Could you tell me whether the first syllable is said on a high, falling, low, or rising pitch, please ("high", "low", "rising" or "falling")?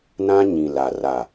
high